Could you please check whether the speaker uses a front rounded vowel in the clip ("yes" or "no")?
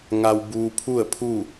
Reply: no